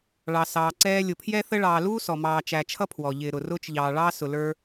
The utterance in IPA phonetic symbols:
ɭ ɑ˩ s ɑː˩ ǀ ɛː˦ lʲ ʊ˨ pʰ j ɛ˥ θ ə˥ ɭ ɑː˨ l uː˥ s ɔ˩ m ɑː˨ t͡ʃ æ˨ t͡ʃʰ ʌ˥ pʰ w ɔ˩ ʎ ɪː˨ ɾ ʊ˩ r ʊː˦ t͡ʃ ʎ ɑː˨ ɭ ɑː˦ s ʊ˨ l ə˞˦

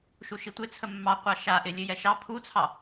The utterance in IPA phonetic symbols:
ʃ u ʃ i tʷ ɪ t͡sʰ ə mː ɑ qʷ ɑ ʃ a ʔ ɪ lʲ ɨ j ɛ ʃ ɑ pʰ u t͡sʰ ɑ

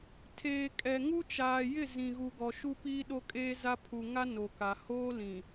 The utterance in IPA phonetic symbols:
tʰ eː˨ kʼ ɛ˨ ŋ u˦ t͡ʃ aː˨ j ɪ˦˨ z ĩ˨ ɣ u˨ ɡ ɔ˨ ʃ u˦ p iː˦ ɗ o˦ kʼ eː˦ z a˦ pʰ u˨ ŋ a˦ n o˨ k a˨ h oː˦ l ĩ˨

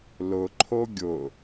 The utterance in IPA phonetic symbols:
l ʊ ǃʰ o ɡʲ ʊ

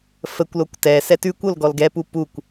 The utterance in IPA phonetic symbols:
f ə kʷ l o kʷ t ɛ s ɛ t ʉ kʷ o l ɡ ɔ l ɡ ɛ p u p u kʷ

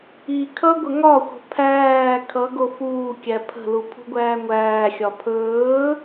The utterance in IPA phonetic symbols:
i kʰ ʌ ɡʷ ə ŋ ɒ xʷ ə̤ pʰ æː kʰ ʌ ɡ o f uː kʲ æ pʰ ə̤ l u pʰ ṳ ɡʷ æː ŋʷ æː xʲ ɒ pʰ ɵː

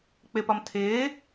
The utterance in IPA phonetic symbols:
k͡p ɪ p ɒ m tʰ ɪː

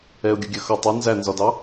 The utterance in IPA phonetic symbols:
ɛ ʊ̯ ɡʲ ʊ ɡʲ ɜ x ʌ tˤ ɛ n z æ n z ɒ d ɑ

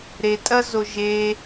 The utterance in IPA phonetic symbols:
ɾ e tʼ ɐ z o ʒ e

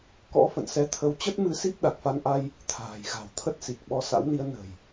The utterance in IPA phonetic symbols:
k ɔ̰˧˥ f ə̰˧˨ n s ɛ˨˦ t̪ʰ ə˨˦ w t͡ɕ ə˦˥ t̚ m ɨ˧ s i˦˥ p̚ ɗ a˨˩ k̚ f a˧ n ʔ a˧ j | t̪ʰ a̤ː˨˩ j ɣ a̤˨˩ w t̪ʰ ə˦˥ t̚ s i˨˩ k̚ ɓ ɔ˧ s a̰˧˥ w n i˨˦ ə̯ n ə̤˨˩ j

